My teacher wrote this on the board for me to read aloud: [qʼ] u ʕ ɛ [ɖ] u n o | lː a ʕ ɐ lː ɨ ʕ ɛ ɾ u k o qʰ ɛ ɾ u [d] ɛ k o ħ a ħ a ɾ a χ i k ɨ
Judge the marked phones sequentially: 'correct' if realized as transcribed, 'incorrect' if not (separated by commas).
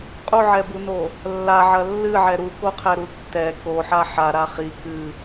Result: correct, incorrect, incorrect